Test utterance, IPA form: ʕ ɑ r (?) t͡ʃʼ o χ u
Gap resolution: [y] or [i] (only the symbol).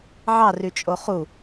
y